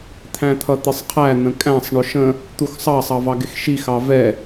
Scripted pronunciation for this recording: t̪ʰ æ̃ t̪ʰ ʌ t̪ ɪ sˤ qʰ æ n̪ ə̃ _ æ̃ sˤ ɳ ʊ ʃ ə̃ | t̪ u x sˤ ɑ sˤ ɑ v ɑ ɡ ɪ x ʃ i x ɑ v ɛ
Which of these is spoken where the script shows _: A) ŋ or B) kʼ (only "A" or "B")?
B